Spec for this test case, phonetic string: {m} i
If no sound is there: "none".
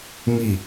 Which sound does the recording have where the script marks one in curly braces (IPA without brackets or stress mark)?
m